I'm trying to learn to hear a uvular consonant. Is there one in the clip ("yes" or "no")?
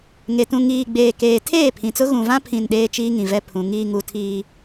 no